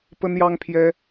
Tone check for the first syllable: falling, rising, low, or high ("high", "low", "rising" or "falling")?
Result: high